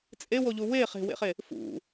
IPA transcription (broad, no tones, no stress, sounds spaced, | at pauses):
t͡sʼ e w o ʎ u w e χ e̤ w ḛ χ e | f ṵ